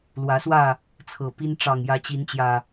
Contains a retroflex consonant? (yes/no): yes